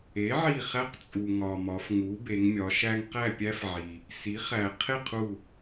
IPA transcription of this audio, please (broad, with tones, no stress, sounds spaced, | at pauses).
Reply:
e˩˥ ʕ i˧˩ χ æ˦ q t͡sʼ u˩ ŋ ɒ˩ m ɒ˩˧ f ŋ u˩˥ b e˩˧ ŋ mʲ ɒ˩˧ ʃ æ˦ ŋ q æ˥˨ pʲ æ˦ f ʕ i˩ | s i˩˥ χ æ˩ qʰ e˥˨ qʰ u˧˩